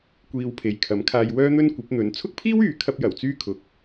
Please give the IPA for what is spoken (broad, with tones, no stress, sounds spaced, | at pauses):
kʷ iː˧ w pʰ e˨ j kʰ ɐ˨˥ m kʰ aː˧ j w œː˥ n̪ ɵ˥ n kʷ ɐ˨˥ p̚ n̪ ɵ˨˥ n t͡sʰ ʊ˥ k̚ pʰ iː˥ w yː˨˧ kʰ ɐ˧ p̚ j ɐ˨˩ w t͡s yː˥ kʰ ʊ˨ k̚